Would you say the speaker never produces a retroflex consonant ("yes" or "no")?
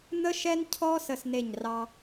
yes